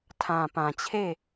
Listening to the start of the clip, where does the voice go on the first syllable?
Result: low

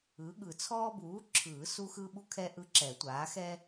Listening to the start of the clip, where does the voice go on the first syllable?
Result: rising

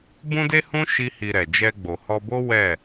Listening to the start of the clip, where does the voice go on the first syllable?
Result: high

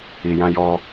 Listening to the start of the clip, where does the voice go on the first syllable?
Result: low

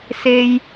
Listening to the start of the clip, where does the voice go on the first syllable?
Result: high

